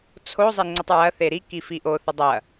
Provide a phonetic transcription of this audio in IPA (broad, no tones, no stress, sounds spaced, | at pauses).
t͡sʰ o zˤ e ŋ͡ǀ ɐ tˤ ɹ ɐ θ e ɾ i k i f i ʔ o θ ə dˤ ɐ